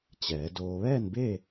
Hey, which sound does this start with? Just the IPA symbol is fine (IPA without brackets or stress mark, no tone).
t͡ɕ